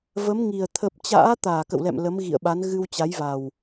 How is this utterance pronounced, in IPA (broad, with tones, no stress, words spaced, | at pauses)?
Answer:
və˨˦mŋi˨˩ə̯ t̪ʰə˨˩p̚t͡ɕa̰ː˧˥ t̪aː˧˩kə̰˧˨wlɛ̰˧˨m lə˨˦mɣḭ˧˨ə̯ɓa˨˦n ɣɨ˧wt͡ɕa˨˦jva˨˩w